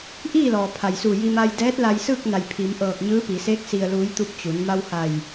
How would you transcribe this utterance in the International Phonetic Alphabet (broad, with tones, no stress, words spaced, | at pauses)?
ʔiː˥˨lɔː˩pʰa˩jsuː˧˩ ji˧maː˧jdɛː˧˥t̚la˧j sɯː˥˨k̚na˧˩j pʰi˩˧mʔɤː˧˩k̚ ɲɯː˧˥pi˩˧se˧˥k̚ si˩ə̯luː˩˧jt̪u˧˩p̚ t͡ɕu˩˧n ma˧wha˧˩j